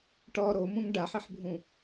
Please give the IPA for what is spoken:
ʈ ɔ ɾ o m ũ ŋ ɖ a ħ i ħ bʱ ũ

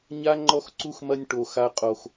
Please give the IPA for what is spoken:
ɲ a˦ ŋ͡ǃ ɔ˦ x ǀ u˦ x m ɐ˦ nʲ ʈ o˦ x a˦ qʼ o˦ x

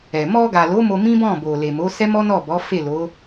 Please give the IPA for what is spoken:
ɛ˨ m ɔ˧ ɡ a˨ l o˨˦ m o˧ m ĩ˦ b ɔ̃˦˨ b o˨ l e˨ m o˨˦ s ɛ˦ m ɔ˦ n ɔ˦˨ b ɔ˨˦ f e˦˨ l o˨˦

